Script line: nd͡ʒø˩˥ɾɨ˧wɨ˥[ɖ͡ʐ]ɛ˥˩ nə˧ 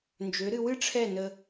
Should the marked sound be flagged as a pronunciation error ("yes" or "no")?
yes